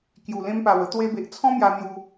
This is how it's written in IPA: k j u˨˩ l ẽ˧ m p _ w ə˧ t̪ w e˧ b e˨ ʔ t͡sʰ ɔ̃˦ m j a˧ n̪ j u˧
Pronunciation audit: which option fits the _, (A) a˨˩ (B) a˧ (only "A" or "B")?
A